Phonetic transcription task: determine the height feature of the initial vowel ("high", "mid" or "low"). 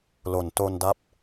mid